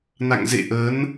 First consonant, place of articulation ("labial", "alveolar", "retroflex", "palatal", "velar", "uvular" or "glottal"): alveolar